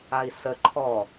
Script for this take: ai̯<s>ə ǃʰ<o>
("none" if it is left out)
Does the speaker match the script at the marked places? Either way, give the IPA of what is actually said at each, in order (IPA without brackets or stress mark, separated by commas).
s, ɔ